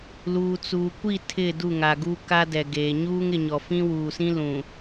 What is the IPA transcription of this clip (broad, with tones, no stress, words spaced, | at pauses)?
luː˨t͡suː˨ kʷi˦˨ tʰɪ˦˨ du˦˨ŋa˨ ɡu˦ka˦dɛ˨ɡeː˨ ɲuː˦ŋɪ˨ɲɔ˨ fĩ˦ wuː˨sĩ˦ lũ˨